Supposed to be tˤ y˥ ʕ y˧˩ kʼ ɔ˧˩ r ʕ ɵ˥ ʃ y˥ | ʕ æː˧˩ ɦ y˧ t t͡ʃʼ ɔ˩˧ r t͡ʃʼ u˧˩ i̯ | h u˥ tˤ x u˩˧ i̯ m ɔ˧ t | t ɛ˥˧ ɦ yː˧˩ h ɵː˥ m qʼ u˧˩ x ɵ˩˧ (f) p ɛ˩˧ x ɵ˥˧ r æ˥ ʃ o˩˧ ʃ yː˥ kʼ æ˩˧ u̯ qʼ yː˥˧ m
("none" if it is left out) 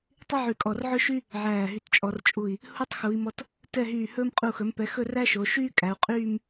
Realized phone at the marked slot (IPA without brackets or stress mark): m